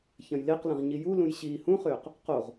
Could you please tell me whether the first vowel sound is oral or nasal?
nasal